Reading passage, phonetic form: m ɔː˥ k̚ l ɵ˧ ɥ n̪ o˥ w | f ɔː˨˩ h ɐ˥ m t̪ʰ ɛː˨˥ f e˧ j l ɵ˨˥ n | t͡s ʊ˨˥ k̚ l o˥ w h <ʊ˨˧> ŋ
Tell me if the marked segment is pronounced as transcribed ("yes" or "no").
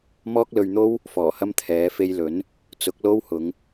yes